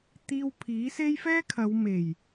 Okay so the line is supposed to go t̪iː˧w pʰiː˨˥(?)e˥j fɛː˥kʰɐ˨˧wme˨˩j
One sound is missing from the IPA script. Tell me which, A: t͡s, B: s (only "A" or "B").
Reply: B